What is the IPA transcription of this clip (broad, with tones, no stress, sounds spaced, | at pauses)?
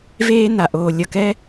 v eː˦ n a˨ ʔ oː˨ lʲ ʌ˨ k ɛ˦